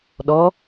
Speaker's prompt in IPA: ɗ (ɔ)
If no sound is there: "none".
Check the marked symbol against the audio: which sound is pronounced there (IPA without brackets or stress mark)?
ɔ